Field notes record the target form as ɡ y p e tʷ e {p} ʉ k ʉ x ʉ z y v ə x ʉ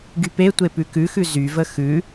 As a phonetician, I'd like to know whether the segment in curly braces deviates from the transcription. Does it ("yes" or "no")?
no